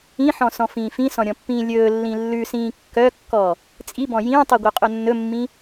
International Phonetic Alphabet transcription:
ĩħɔ̃sɔ̃fĩː fĩsɔ̃ɾʲɔ̃pːĩː lʲɵːlːĩ lːʉsĩː kːœkːɔ | t͡sʼibɔ̃ jĩːtˤiɡʷœqʼɵ nːɵmːĩ

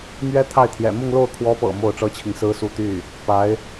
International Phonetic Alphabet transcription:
mɥɛ˥t̪ʰa˥˩ɪ̯t̪ʰjɛ̰˨˩ mʊ˥˧ŋlo˥˩ʊ̯kʰwɔ˧˥pɤ̰˨˩ mo˥˩ʊ̯ʈ͡ʂɤ˥t͡ɕʰi˨ŋ sɹ̩˥su˥˧t̪y˥˩ | pa˧˥ɪ̯

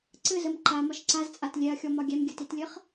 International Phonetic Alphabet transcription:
ǀɘzəm ǃamɒʃ ǀazt͡sʼat lʲɛɐ̯xʲɔmɒ ɡʲɛmɡʲɘtitlʲɘχ

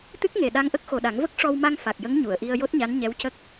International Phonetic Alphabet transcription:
t̪ɨ˦˥k̚ŋe˨˩ɗa˧ŋʔə˦˥k̚ xo˨˩ɗa˨˩˦ŋvə˦˥k̚ ʂɔ˧wma˧ŋ fa˨˩k̚jə˧˥ŋ ɲu˨˩˨ə̯ʔi˧ə̯ jo˦˥t̚ɲa˧˥n ɲɛ˧˥wcə˦˥k̚

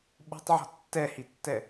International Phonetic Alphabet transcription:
ɓo̤tˤʕɔ̤ tːɛhitːɛ

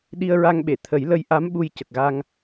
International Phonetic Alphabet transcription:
ɗi˧ə̯ɹa˧ŋɓe˨˩˨ t̪ʰə˨˩˦jlə˧j ʔa˧˥m ɓu˧j cə˨˩k̚ɣa˧ŋ

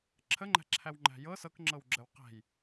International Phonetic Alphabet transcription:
ǁʰəŋ͡ǃæ̤ǁʰæw ŋ͡ǃæ̤jɤ sɤkŋ͡ǁɤwɡ͡ǁəw qæ̤j

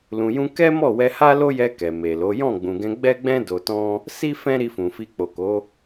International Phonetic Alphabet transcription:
lũ˨jũ˧ kɛ˦mɔ˦˨ wɛ˧ha˦lo˦jɛ˧ kɛ˨me˨lo˨˦ jɔ̃˦˨ɡ͡bũ˨ɡɛ̃˧ ɡ͡bɛ˦ɡ͡bɛ̃˦ do˧tɔ̃˦ | si˦ fɛ̃˦ ɾi˧fũ˨fi˧ k͡po˨ko˨˦

